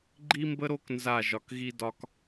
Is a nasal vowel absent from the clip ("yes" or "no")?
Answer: yes